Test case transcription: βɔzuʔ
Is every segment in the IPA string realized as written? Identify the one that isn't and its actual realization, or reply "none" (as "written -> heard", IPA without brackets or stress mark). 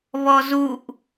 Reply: none